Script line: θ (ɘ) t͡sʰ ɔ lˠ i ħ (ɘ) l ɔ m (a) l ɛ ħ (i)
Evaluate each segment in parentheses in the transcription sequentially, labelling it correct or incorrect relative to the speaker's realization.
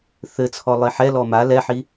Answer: correct, incorrect: ɛ, correct, correct

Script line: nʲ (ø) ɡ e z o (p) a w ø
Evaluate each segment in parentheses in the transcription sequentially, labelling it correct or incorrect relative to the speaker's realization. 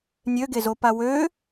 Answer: correct, correct

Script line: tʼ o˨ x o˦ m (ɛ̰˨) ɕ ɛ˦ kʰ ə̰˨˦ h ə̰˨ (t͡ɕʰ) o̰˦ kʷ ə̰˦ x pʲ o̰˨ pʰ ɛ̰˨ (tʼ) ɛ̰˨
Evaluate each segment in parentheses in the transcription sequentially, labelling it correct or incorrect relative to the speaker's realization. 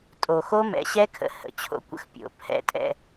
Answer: incorrect: ɛ̰˨˦, correct, correct

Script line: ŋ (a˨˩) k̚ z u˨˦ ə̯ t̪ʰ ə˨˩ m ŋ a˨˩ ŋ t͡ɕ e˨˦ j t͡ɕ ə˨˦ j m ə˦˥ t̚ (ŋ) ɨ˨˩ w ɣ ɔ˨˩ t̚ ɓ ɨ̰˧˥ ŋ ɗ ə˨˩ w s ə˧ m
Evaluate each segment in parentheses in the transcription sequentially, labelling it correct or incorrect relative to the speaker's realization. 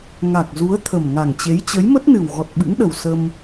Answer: correct, incorrect: n

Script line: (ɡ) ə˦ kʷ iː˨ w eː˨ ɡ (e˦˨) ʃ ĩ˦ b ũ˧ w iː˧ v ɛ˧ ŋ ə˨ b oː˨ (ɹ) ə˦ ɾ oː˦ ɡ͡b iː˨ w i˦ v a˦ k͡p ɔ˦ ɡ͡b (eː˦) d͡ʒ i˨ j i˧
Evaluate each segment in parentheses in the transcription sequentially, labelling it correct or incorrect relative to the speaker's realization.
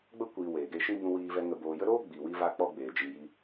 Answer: incorrect: ɡ͡b, incorrect: e˦, incorrect: j, incorrect: eː˨

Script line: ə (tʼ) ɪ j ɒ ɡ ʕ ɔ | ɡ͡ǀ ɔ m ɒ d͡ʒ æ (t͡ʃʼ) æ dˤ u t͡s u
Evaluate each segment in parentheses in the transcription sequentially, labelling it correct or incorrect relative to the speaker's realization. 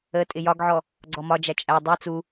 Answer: correct, correct

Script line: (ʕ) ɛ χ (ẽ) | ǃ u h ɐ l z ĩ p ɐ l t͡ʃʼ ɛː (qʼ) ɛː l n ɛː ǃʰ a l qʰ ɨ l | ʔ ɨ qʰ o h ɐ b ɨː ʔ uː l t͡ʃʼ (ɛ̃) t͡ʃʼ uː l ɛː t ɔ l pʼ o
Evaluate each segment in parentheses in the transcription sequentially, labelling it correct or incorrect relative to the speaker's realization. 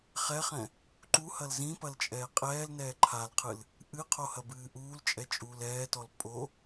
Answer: incorrect: χ, incorrect: ɛ̃, correct, incorrect: ɛ

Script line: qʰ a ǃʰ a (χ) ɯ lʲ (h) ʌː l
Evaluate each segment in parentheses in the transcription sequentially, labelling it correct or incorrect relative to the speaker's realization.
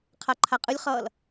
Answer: incorrect: qʼ, incorrect: χ

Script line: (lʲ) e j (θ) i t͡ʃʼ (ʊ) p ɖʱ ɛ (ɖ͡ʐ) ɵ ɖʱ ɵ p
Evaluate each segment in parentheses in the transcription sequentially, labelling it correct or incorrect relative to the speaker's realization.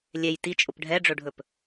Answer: correct, incorrect: t, correct, correct

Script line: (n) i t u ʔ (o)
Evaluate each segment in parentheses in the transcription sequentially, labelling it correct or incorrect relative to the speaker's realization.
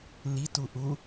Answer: correct, incorrect: u

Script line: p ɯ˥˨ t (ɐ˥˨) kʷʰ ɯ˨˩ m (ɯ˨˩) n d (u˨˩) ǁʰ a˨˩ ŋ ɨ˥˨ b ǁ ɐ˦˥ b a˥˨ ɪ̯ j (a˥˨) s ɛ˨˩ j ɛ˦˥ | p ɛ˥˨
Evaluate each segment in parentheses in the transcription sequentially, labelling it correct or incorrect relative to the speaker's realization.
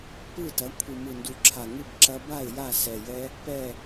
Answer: incorrect: ɐ˩˥, correct, correct, correct

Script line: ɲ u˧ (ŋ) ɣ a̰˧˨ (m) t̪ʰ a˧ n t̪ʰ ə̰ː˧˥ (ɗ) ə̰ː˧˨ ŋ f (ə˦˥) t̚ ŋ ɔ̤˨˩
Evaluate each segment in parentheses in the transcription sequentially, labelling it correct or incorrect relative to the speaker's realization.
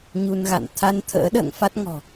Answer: incorrect: n, incorrect: n, correct, incorrect: a˦˥

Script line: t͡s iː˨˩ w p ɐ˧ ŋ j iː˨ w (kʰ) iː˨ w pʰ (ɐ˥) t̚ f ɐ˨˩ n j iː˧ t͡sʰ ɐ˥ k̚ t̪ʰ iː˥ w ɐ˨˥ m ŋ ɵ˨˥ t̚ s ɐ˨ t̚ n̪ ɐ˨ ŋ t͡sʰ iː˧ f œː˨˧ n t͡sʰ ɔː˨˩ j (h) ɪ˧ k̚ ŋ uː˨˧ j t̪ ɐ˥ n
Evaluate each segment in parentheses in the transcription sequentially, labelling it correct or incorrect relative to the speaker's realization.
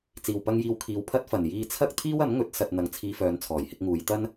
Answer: correct, correct, correct

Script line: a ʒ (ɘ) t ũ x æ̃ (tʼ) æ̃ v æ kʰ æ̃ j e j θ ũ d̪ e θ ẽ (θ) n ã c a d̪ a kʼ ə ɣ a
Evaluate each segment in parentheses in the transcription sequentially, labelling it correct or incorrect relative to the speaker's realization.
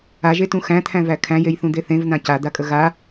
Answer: incorrect: e, incorrect: t̪ʰ, incorrect: v

